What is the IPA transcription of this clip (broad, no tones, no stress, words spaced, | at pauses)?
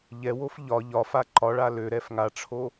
ʎɛwof ʎɒ ʎɒfa ǃɒɭa løɾɛf ŋaʈ͡ʂʰo